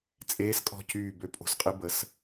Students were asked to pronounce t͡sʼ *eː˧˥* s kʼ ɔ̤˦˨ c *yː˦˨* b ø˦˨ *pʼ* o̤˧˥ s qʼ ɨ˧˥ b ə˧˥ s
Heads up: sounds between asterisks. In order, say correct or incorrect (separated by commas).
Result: correct, correct, correct